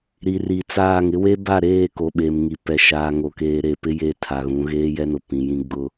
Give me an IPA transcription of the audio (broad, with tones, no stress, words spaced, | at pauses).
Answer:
ɾi˨ri˨t͡saː˦˨ŋ ɪ˦we˦ba˦˨ɾeː˦˨ ko˨ɓe˨mŋi˨pɛ˨ ʃaː˨ŋo˨keː˨ɾe˨ pɪ˦je˦ tʰa˨ɣũ˨˦ ɣeː˦jɛ˦nʊ˨ pĩ˨jĩ˦ ɡ͡bʊ˦